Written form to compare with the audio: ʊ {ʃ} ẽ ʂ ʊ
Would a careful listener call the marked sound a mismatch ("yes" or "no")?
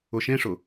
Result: no